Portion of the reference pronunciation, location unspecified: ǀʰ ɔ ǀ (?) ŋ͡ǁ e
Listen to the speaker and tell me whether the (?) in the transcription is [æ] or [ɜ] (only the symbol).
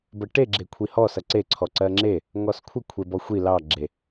ɜ